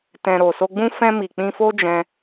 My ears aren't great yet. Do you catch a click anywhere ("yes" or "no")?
no